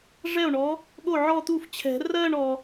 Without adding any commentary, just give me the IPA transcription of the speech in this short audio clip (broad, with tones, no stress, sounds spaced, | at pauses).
ʐ ɛ˥˩ o̯ ɳ ɔ˨˥ | ɠ o˥˩ ʕ ɔ˥˧ t̪ u˥˩ f t͡ɕʰ ɛ̤˨˩˦ r ɜ˥˧ ɳ ɔ˨